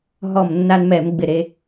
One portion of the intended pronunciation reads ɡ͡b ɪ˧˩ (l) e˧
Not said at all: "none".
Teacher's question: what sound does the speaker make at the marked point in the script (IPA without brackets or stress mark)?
ɾ